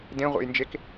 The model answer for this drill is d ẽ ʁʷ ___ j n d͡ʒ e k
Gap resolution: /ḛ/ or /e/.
ḛ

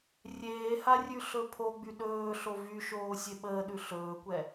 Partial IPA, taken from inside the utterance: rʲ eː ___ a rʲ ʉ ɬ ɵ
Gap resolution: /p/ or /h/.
h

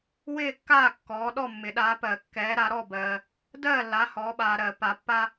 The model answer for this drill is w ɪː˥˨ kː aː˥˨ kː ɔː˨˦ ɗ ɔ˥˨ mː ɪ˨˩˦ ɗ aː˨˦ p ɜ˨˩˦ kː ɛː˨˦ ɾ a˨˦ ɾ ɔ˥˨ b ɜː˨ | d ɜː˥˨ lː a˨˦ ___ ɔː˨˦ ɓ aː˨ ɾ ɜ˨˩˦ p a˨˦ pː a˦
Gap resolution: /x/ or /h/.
h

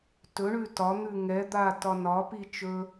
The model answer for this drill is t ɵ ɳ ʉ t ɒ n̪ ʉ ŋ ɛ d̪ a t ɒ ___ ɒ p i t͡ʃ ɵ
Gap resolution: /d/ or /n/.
n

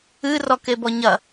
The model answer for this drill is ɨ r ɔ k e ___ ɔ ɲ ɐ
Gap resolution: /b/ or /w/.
b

